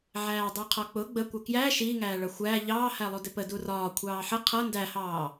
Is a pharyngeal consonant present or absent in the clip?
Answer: present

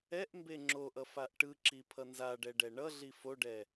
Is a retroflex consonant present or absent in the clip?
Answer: present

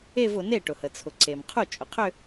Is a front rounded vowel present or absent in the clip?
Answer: present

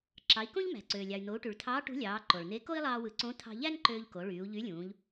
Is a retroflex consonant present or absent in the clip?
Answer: present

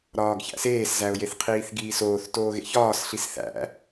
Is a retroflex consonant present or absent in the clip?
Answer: absent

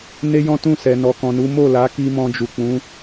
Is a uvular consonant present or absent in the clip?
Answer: absent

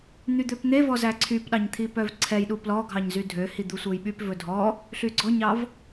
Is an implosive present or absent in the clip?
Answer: present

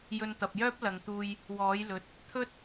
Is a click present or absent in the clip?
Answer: absent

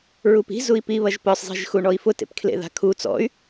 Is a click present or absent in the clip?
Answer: absent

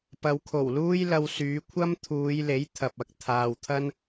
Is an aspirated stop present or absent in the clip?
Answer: present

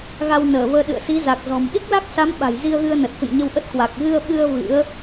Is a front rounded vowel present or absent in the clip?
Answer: absent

